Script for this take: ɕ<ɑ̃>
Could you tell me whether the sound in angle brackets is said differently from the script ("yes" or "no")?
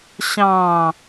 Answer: no